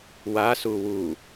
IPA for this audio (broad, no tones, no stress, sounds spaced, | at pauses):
w a s u w u